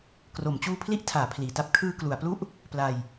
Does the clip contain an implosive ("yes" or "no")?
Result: no